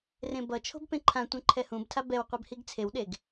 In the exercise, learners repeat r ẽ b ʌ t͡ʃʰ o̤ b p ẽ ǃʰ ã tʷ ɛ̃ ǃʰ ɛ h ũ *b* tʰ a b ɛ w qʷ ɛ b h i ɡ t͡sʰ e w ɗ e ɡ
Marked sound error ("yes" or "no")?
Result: no